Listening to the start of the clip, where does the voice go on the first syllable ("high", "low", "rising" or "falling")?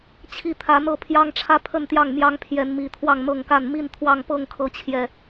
falling